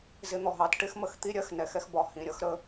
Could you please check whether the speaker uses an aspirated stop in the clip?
no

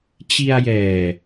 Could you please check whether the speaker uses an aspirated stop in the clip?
no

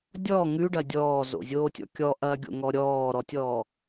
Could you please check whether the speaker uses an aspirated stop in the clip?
no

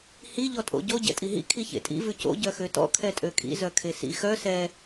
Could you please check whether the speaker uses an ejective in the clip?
yes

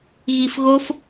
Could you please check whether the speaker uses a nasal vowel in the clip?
no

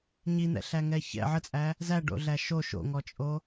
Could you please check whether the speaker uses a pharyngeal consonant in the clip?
yes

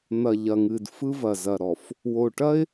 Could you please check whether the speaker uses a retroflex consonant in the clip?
yes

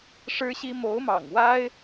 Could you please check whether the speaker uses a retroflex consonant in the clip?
yes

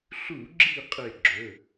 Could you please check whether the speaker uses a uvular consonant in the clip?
yes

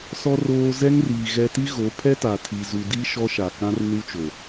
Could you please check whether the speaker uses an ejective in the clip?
no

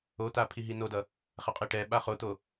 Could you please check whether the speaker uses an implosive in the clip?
yes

